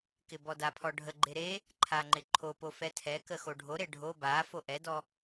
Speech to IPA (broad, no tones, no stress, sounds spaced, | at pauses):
k ɪ b ɔ d a pʰ ɔ ɖʱ ə ɡ͡ǃ e ɾ e | ǃʰ a ŋ͡ǃ ɪ ǃʰ o p o f ɛ tʰ ɛ k ə x o ɖʱ o ɾ e ɖʱ o b a f o ʔ ɛ d ɔ